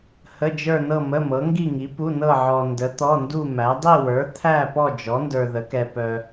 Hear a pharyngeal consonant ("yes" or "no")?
yes